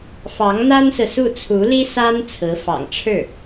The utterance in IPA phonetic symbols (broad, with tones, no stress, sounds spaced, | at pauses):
f ɑ˧˥ ŋ n̪ a˥ n s ɹ̩˨ s u˥˩ t͡sʰ u˧˥ l i˥ s a˥ n t͡sʰ ɹ̩˧˥ f ɑ̰˨˩ ŋ ʈ͡ʂʰ ɻ̩˥˩